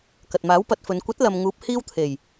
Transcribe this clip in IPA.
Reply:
k ɐ˨ t̚ m aː˨˥ w p ɐ˨˥ t̚ f ɵ˨˧ n kʷ ɐ˨˥ t̚ l ɐ˨ m ŋ uː˨˥ p̚ h iː˥ w t̪ʰ e˨˩ j

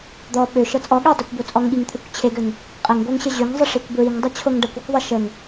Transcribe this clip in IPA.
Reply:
d̪ ɔ ɓ ø ʃ ɤ t͡sʼ ɔ ɠ ø dˤ e kʷ b o t͡sʼ ɔ ŋ ɠ i ŋ t̪ʰ ø kʷ t͡ɕʰ e ɡ ø ŋ | qʼ ə ŋ ɡʷ ɜ ŋ ɕ ə ʑ ø ŋ zˤ ə ʂ i kʷ b ɹ i ŋ dˤ ʌ t͡ɕʰ o ŋ ɖ ʌ kʷ ɔ kʷ ðˤ ə ʃ ə ŋ

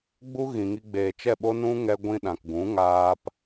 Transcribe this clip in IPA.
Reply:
ɡ͡b u˦ ɣ ĩ˨ ŋ i˧ ɡ͡b eː˨ t͡ʃ ɛ˦˨ ɓ o˦ n ũ˦ ŋ ɛ˧ ɡʷ ĩ˧ ɗ ã˨ k ɡ ũ˨˦ ŋ aː˧ p

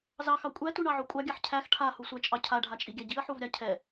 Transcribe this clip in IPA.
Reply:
z ɑ x ɑ kʷʼ æ t u ɳ ɑ ʕ o kʷʼ ɑ ɡʲ a ħ cʰ æ x ʈʰ a h u sʷ æ t͡ʃʼ ɑ cʰ a ɖʱ a t͡ʃʼ i ɡʲ æ ɟ i ɐ̯ ħ u v ɾʲ a cʰ ɛ

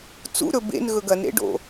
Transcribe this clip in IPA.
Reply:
t͡s ṵ ɾ ɵ b ḛ n ɣ ɵ ɡ ɐ n ɾ ḛ ɖ o̰

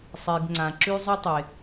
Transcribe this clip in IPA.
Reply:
sˤ i˩ ɡ ŋ͡ǀ ã˩ ǁ y˥ zˤ y˥ tˤ e˩

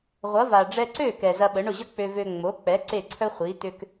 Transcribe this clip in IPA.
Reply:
ʁʷ ɐ˩˥ v a˩ ɖ͡ʐ ɛ˧ ǀ ø˥˩ k ɛ˩ z ɐ˧ ɓ ə˩˥ ɳ ʊ˥˩ ʑ ə˥ k͡p ø˧ v ø˧ ŋ͡m o˩˥ k͡p ɛ˩˥ ǀ e˥˩ ǀʰ œ˥ χʷ i˩˥ t ʏ˧ k

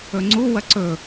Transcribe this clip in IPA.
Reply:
ɵ ŋ͡ǀ u w ɐ ǀ ɵ

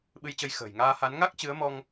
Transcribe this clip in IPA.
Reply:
ɓ ɨ˧ j t͡ɕ ə˧ j x ə̤ː˨˩ j ŋ aː˧ h a˨˦ n ŋ a˦˥ k̚ t͡ɕ ɨ˨˦ ə̯ m ɔ˧ ŋ

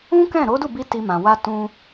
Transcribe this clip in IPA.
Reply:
ũ˦ k ɛ̃˦˨ ɾ o˨˦ d u˦˨ b i˧ t i˧ m ã˨ w a˧ t ũ˧

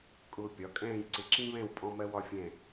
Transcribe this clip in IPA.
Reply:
kʼ ʊː˧ pʲ ɒ˩˧ kʼ ɛ̃ː˥˧ j ǀ ɪ˧ ǁ ĩ˥ β ɛ̃˥˧ w pʼ ɔ̃˧ m ɜ˧ w ɒ˧ fʲ ɛ̃˧˩

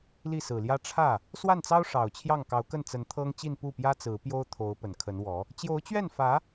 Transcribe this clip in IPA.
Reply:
l i˥˩ s ɹ̩˨˩ l j ä˥ ʈ͡ʂʰ ä˥˩ | s w a˥˩ n t͡s ɑ˥ ʊ̯ ʂ ɑ˨˩ ʊ̯ t͡ɕʰ j ɑ˥˩ ŋ k ɑ˧˥ ʊ̯ k ə˥˩ n t͡s ə˧˥ n t̪ʰ ɤ˥ ŋ t͡ɕ i˥˧ n p u˥˩ p j ä˥ t͡s ɹ̩˧˥ p j o˥ ʊ̯ t̪ʰ o˧˥ ʊ̯ p ə˨˩ n kʰ ə˧˥ n w ɔ˧˥ | t͡ɕ j o˧˥ ʊ̯ t͡ɕ ɥ ɛ˥˩ n f ä˧˥

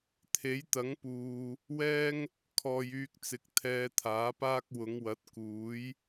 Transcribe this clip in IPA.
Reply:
t̪ʰ e˨˥ j t̪ ɐ˨˥ ŋ p uː˨ | w ɛː˧ ŋ | kʰ ɔː˨ j yː˧ k̚ t͡s ɪ˨ k̚ t̪ʰ ɛː˧ t̪ʰ aː˨˥ p aː˥ k̚ w ʊ˨˧ ŋ w ɐ˨˥ t̚ k uː˨˥ j

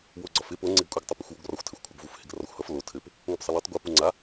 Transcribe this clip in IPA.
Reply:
w o ɡ͡ǀ ɒ f ɪ p o ŋ͡ǀ e ɡ kʷʼ ɪ ɡ tˤ o p ɪ xʷ w o ɡ r ɒ xʷ tʰ ɘ xʷ kʷʰ ʌ ɡ v u f h ɪ ɡ r ɒ xʷ h ʌ f l o tʰ ɘ p | ŋʷ ɘ p sˤ ə l u tˤ ɡʷ ʌ p u ŋ͡ǀ a

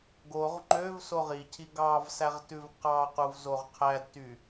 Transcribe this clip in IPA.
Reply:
ɡ o ʁ ŋ͡ǃ ø v s o ʁ i cʰ i ɡ ɑ v s æ ʁ t ʉ v q ɑ q u v z o ʁ qʰ æ d t y

